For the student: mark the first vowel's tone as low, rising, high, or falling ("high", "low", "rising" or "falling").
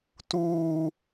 high